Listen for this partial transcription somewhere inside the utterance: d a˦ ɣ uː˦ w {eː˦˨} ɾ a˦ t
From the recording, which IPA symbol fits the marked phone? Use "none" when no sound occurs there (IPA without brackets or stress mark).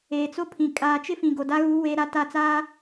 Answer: eː˦